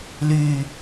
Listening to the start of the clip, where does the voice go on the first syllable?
low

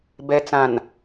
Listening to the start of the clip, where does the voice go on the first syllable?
low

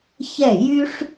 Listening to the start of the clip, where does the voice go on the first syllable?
falling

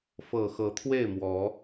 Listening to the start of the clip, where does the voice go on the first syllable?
low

